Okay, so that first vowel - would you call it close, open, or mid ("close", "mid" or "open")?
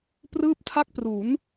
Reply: close